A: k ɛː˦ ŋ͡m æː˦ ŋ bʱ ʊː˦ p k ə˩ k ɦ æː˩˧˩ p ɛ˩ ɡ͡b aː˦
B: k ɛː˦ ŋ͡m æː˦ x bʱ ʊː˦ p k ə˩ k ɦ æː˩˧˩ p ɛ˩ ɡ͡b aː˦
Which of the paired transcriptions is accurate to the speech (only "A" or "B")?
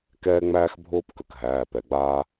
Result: B